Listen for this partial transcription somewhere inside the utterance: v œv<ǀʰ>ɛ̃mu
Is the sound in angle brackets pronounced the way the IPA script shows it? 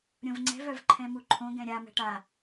no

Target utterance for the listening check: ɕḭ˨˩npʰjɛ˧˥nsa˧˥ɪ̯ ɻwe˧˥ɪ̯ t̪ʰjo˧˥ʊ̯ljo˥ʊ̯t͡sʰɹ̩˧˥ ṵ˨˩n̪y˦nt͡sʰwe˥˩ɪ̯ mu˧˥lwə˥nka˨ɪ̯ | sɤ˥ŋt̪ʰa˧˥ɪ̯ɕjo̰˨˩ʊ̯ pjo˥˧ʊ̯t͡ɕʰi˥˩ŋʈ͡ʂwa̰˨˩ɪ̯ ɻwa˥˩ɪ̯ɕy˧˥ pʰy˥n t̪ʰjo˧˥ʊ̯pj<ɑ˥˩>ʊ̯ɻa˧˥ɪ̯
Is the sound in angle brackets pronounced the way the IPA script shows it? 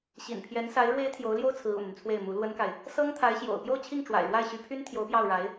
yes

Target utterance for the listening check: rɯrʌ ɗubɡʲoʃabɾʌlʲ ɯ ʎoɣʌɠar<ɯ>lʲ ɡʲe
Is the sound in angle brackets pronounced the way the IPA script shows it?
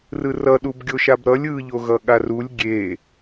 no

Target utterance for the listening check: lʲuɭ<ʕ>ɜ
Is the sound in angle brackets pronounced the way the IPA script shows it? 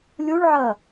yes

